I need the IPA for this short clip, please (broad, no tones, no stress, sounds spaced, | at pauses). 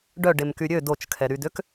ɖ œ ɖ e m k y ɾʲ ø d o t͡ʃ kʰ ɛ ɾ y d ø k